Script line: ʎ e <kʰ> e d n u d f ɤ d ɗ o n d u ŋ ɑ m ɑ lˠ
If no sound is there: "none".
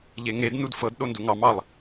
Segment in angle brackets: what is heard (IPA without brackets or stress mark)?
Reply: ŋ